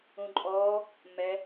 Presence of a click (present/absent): present